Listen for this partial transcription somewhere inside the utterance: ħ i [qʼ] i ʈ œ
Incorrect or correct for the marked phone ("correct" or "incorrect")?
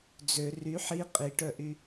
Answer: correct